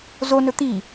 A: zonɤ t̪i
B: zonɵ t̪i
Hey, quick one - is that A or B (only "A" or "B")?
B